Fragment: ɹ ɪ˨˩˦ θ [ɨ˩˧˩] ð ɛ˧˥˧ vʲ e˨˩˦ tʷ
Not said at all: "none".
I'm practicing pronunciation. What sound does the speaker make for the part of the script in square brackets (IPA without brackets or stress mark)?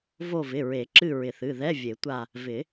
ɨ˩˧˩